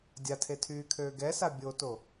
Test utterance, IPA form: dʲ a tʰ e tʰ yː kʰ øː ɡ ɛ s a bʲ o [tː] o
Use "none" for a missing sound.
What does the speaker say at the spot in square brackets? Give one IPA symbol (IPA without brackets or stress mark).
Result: t